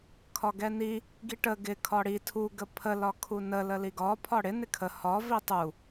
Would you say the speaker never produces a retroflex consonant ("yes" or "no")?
no